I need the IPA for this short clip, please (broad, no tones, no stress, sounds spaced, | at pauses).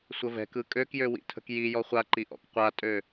sʷ ə v ɛ̤ k ɯ kʼ ø k j ø w ḭ tʰ ə̤ k j i j ɔ χʷ a ǃ i ʔ ɔ̰ k qʷ a tʼ ø